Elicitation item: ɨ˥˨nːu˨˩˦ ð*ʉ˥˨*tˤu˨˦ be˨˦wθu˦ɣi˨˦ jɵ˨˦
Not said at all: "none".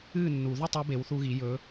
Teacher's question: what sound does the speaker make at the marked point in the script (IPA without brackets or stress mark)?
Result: ʉ˥˨